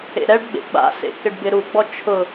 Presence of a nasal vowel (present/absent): absent